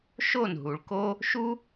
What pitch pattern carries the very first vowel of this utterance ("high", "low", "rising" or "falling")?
falling